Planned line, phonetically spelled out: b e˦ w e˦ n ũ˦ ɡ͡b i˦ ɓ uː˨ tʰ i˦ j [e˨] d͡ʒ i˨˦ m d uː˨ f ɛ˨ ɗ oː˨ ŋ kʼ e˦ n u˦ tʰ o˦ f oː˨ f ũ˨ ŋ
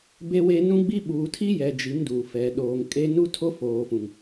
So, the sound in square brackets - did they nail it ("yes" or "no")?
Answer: no